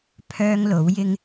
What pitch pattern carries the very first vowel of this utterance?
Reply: high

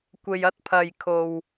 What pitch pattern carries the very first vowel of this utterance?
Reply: low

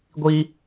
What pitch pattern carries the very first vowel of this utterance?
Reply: high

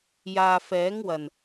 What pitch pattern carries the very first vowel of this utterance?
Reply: low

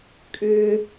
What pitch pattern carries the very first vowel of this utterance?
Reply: high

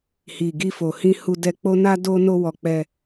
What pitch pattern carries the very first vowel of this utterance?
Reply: low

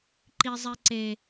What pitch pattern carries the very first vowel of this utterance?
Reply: high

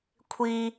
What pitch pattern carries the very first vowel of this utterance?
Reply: high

